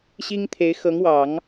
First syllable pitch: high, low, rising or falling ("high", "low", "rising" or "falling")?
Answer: high